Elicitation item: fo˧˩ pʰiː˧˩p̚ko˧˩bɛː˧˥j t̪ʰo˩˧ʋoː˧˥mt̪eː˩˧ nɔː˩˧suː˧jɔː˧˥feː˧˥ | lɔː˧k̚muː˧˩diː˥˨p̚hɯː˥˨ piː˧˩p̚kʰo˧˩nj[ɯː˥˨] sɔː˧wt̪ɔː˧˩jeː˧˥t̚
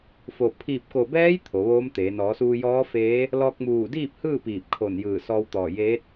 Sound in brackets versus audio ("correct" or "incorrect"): incorrect